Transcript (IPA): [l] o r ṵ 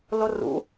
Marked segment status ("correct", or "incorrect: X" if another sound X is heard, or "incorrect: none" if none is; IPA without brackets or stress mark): correct